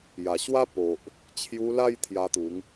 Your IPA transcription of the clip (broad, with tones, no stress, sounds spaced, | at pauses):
j a˨˩ ɕ w a˦ p o˨ ʔ | t͡ɕʰ j u˧ l a˥˧ j t̪ʰ j a˧ t̪ u˨˦ ŋ